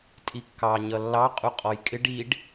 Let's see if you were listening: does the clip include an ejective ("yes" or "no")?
yes